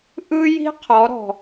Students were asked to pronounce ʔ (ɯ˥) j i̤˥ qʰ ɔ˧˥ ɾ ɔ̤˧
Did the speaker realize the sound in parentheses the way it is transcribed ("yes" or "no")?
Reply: yes